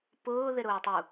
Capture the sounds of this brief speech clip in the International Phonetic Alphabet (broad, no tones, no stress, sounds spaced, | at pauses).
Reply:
p ʊː ð ɪ ɾ ʊː tˤ u